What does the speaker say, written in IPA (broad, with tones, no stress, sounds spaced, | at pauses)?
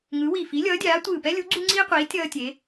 ŋ ɯ˨˥ w i˧˩ f i˨˥ lʲ ʌː˨˥ dʲ aː˨˥ tʷ ɯː˧˩ p ɛ˥ lʲ u˨˥ ɡ͡ǀ u˥ ŋ͡ǀ iː˥ qʷ iː˨˥ tʲ ʌː˥ tʲ e˨˥